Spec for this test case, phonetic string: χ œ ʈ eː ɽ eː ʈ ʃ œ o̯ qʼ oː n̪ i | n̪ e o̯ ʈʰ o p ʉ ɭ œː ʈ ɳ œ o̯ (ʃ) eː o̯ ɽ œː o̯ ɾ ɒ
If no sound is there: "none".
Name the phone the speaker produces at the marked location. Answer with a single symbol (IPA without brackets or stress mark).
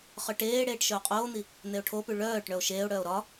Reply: ʃ